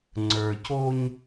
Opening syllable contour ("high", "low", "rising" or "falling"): low